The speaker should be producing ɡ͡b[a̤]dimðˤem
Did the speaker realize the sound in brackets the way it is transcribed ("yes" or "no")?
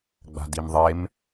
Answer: yes